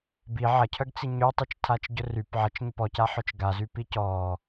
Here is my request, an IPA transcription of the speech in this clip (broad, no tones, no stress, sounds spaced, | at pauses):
b i ʕ ɐ cʰ œ ɡ t͡s i ɲ ø tˤ i t͡ʃ tʰ a t͡ʃ ɟ ʊ r y p ʕ ɐ t͡ʃ ɲ ʊ p ɔ c a ħ œ t͡ʃ ɡ a z y p i c ɔ